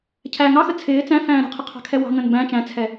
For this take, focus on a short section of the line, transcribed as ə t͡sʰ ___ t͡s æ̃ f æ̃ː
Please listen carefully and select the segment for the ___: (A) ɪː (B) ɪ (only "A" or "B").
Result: A